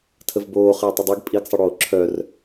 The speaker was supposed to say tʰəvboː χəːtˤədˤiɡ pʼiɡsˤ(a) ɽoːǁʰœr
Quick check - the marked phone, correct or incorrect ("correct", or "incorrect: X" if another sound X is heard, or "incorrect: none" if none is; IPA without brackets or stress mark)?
incorrect: ə